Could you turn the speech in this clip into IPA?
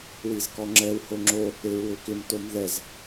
w i z k ɔ ŋ͡ǁ ɛ w h o ŋ͡ǁ o | e ɹ w ø k ɪ m t o m ð ɛ z

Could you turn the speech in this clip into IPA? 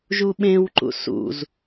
ʒ u ɓ ẽ w ǃ ṵ s ṵ z

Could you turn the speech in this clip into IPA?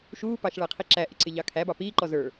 ʃ uː p ɑ ʃ ɭ æ qʰ i ǁ æ ʔ ɪ ǀ ɪ ʎ ɑ kʰ æ b ɑ p iː ǃ ɔ z ə˞

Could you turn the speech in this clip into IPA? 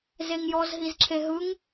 z e ŋ j ɔ z ɦ i z ǁʰ e ɦ ɯ ŋ

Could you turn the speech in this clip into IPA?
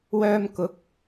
w œː˧ m k ʊ˨˥ k̚

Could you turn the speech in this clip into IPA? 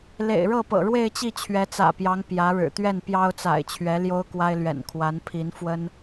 l ḛ˨˩ ɪ̯ ɻ ɤ˥˩ p ɤ̰˨˩ ɻ w e˥˧ ɪ̯ t͡ɕ i˥˩ t͡ɕʰ ɥ ɛ˧˥ t͡s ä̰˨˩ p j ɑ˧˥ ŋ p j ä˧˥ ɻ ɻ̩˨˩ t̪ ɥ ɛ˥˩ n p j ɑ˥ ʊ̯ t͡s a̰˨˩ ɪ̯ t͡ɕʰ ɥ ɛ˧˥ l j o˥ ʊ̯ k w a˥ ɪ̯ l ɥ ɛ̰˨˩ n kʰ w a˧˥ n pʰ i˧˥ n f w ə˥ n

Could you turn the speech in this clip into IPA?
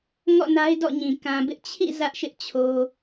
ŋ ɔ̰˦˨ n a˦ ɪ̯ d ɔ̰˦˨ ɲ ĩ˨ k ã˨ b ɪ˦ ʔ t͡ɕʰ ḭ˦˨ z ä˦ ʔ ʃ ɪ˦ ʔ t͡ɕʰ o˦

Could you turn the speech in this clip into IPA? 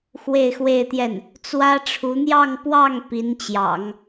x w e˥˧ ɪ̯ x w e˥˧ ɪ̯ t̪ j ɛ˥˩ n | t͡s w ä˥ ʈ͡ʂʰ u˧˥ n̪ j ɑ˥˧ ŋ p w ɑ˥˩ ŋ p i˧˥ n t͡ɕ j ɑ̰˨˩˦ ŋ

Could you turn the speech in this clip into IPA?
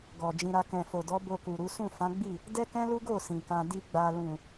ɡ ɔ˨ d͡ʒ ĩ˧ ɾ a˧ k ɛ̃˨ f o˨ d ɔ˨˦ b o˧ k u˨ ɾ u˨˦ s ũ˦˨ f ã˨˦ ɡ͡b i˦˨ | d ɛ˦ k ɛ̃˦ l u˦ ɡ o˦˨ s ĩ˨ k ã˧ d i˦ ɡ͡b a˧ l ũ˨

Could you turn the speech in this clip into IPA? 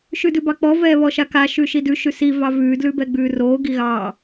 ʃ ʉ d ʉ b ɑ k͡p ɔ v ɛː β ɔ ʃ a k a ʃ ʉ ʃ i d ʉ ʃ ʉ s i v ɑ v ʉː d l ʉ b ɛ ɡ͡b ʉː r oː ɡ i ɣ ɑː

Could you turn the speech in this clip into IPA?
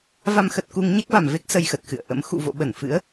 v a˧ m x ə˨˩ t̚ k u˧ ŋ ɲ ɛ˦˥ k̚ v a˨˩ m v e˦˥ k̚ s ə˧ j x ə˨˩ t̚ x ɨ̰˧˨ ə̯ ʔ ə̰˧˥ m x ṵ˧˨ v o̰˧˨ ɓ ə˧˩ n f ɨ̰˧˥ ə̯

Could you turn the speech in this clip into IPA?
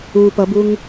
u p ʌ b u ŋ

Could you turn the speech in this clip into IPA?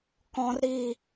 k ɔ̃ r ɾ i

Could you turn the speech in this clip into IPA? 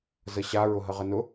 z ə ɕ a ɹ ʊ ɦ ə ʁ ə n ʊ

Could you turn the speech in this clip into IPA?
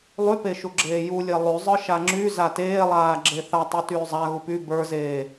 lˠ y p e ʃ u ɡ͡ǁ eː j u lʲ e lˠ y zˤ ə˞ ʃ a ŋ͡ǁ y z a t eː lˠ aː ɡ͡ǁ e θ a tˤ u t yː zˤ a ɣ u p y b ə˞ z eː

